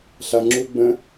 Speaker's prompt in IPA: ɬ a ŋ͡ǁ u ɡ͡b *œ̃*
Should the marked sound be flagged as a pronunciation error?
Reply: yes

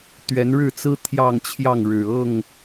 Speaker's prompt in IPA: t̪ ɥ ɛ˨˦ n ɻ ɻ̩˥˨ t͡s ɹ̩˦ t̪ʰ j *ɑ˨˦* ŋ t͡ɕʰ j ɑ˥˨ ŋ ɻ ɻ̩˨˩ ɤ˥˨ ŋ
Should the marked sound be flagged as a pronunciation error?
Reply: yes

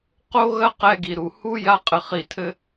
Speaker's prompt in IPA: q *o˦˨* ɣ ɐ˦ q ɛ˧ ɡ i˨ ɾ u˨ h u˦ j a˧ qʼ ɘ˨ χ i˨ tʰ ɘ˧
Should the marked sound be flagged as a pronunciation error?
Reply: yes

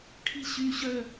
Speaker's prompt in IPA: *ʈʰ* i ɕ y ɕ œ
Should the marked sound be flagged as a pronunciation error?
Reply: no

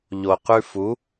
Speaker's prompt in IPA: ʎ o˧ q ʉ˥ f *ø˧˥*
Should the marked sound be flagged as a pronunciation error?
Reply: yes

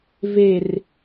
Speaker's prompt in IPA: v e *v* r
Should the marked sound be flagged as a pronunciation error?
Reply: yes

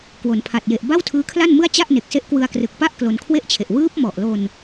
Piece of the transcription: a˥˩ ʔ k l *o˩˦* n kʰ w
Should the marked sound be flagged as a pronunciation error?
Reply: yes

